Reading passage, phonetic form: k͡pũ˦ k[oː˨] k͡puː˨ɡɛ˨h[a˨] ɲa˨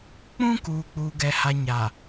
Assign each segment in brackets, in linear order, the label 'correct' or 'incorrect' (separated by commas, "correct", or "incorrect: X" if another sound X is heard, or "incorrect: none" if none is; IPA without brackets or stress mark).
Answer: incorrect: uː˨, correct